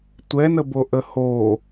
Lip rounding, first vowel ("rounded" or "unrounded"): unrounded